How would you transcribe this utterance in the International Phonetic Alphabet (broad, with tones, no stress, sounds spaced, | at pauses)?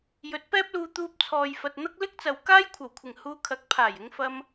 j ɵ˨˥ t̚ p ɛː˥ p̚ l uː˧ t̪ uː˧ p̚ t͡sʰ ɔː˨ j f ɐ˨ t̚ n̪ ɐ˥ k̚ l ɪ˥ k̚ t͡s ɐ˨ w k aː˥ j kʷʰ ɐ˨˩ w kʷʰ ɪ˨˩ ŋ h uː˧ kʰ ɐ˨˥ k̚ pʰ aː˨˩ j ɪ˧ ŋ f ɐ˧ m